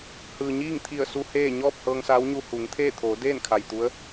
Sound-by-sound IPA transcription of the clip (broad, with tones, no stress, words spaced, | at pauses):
hɯː˩ɲiː˥˨ŋt̪ʰi˧˩ə̯su˧ heː˥˨ ɲɔː˥˨p̚hɤː˧ŋsaː˧˥wɲu˧ hu˩˧ŋt̪ʰeː˥˨ t̪ʰoː˩˧deː˥˨nkʰa˩j t̪u˧˥ə̯